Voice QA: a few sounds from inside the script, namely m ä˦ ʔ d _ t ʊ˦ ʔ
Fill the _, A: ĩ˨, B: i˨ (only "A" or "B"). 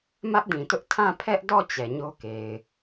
A